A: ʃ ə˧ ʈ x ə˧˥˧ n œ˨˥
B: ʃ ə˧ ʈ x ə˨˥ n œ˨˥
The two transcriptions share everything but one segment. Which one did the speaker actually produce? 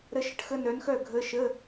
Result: A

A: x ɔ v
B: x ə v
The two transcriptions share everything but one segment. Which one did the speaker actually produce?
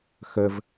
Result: B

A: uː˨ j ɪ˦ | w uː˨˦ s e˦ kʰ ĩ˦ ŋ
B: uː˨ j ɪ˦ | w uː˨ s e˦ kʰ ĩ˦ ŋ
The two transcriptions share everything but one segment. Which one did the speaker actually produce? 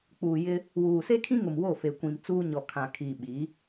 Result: B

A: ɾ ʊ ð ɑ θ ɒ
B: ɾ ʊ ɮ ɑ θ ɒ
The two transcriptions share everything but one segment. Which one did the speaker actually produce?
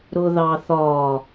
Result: A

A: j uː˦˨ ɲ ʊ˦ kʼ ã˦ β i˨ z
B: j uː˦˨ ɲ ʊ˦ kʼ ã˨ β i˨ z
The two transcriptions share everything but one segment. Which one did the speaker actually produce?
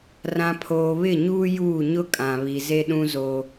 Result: B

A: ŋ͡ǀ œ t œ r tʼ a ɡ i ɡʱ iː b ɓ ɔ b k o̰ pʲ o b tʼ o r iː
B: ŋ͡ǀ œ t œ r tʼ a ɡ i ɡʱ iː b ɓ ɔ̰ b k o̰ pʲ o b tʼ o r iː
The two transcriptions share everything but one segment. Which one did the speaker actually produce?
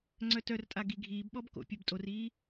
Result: A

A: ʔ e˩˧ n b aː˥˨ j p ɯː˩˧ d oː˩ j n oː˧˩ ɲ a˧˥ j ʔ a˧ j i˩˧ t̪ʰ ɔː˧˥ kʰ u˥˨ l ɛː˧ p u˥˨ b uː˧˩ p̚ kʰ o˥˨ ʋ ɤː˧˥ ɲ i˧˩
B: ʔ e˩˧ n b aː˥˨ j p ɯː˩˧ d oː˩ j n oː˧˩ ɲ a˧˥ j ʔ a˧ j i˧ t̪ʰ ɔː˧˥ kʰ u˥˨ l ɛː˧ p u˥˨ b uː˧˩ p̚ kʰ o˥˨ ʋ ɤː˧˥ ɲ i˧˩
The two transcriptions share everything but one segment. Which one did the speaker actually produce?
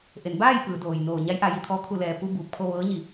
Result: B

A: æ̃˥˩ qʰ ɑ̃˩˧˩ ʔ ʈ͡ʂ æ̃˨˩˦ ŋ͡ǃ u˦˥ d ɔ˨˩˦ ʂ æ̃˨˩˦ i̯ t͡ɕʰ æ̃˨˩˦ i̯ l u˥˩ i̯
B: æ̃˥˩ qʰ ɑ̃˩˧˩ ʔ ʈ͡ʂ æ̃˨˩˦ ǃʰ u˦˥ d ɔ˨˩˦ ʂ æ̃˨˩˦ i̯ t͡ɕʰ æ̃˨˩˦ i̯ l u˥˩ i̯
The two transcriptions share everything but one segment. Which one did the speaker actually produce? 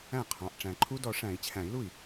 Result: B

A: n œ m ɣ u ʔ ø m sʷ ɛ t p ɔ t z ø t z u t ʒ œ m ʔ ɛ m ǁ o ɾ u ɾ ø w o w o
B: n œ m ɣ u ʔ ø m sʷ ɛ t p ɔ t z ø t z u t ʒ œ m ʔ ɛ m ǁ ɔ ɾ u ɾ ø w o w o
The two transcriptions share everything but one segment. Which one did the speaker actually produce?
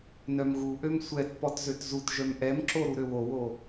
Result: A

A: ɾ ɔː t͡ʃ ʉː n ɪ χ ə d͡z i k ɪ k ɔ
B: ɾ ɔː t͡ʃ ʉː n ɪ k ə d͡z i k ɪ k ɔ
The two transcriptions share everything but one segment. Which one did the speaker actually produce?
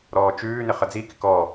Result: A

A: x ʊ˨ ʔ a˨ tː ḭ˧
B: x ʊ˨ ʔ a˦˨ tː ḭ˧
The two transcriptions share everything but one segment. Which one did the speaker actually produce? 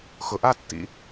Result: B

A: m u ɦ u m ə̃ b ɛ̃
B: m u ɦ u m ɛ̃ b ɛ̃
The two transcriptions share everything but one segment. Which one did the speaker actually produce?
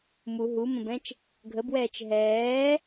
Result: A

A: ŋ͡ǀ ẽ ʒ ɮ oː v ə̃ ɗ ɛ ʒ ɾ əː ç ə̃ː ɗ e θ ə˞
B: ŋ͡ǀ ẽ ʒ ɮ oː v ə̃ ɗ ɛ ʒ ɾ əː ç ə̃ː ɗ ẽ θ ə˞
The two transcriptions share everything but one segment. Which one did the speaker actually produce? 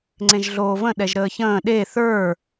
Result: A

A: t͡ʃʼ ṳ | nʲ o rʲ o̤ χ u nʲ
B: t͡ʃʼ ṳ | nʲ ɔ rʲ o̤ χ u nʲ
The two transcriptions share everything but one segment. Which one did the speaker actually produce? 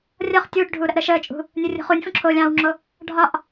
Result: A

